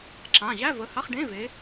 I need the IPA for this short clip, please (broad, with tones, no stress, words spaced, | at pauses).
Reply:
ǁã˩˧˩ ʑæ˧˥˧və˩˧˩ha˧˥˧χ ɖẽ˧˥˧ve˨˦